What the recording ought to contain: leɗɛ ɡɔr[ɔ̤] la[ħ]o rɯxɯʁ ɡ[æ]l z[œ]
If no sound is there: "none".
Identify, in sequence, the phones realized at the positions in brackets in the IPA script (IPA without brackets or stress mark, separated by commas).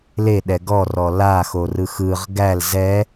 ɔ, x, æ, ɛ